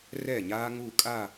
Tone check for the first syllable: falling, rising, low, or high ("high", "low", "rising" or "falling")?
falling